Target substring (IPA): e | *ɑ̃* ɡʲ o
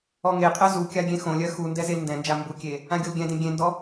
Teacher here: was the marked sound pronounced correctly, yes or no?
no